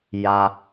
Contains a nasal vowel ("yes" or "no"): no